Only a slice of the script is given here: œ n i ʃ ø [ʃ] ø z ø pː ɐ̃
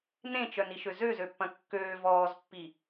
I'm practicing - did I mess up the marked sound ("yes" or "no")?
yes